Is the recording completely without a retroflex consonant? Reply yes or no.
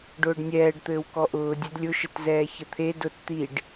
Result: no